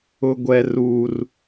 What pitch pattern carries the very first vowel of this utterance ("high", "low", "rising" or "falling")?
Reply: high